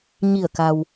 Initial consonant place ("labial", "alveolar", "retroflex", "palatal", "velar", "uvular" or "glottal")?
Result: palatal